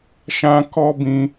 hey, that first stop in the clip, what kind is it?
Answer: plain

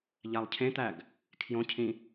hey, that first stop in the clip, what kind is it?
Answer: aspirated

